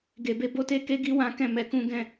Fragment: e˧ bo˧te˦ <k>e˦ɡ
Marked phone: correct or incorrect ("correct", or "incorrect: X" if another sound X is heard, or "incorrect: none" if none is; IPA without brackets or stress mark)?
correct